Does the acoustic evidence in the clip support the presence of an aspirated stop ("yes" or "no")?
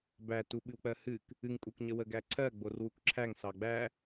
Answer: yes